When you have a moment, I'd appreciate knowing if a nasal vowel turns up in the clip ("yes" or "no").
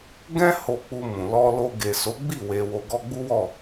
yes